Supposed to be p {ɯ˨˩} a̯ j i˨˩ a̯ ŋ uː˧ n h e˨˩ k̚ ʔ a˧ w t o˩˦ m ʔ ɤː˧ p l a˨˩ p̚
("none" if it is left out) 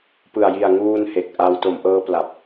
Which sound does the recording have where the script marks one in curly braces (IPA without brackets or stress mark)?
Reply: ɯ˨˩